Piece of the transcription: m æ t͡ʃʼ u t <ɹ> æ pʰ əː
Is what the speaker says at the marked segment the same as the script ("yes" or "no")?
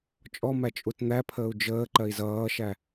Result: no